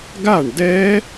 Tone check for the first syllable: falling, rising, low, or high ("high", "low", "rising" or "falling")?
falling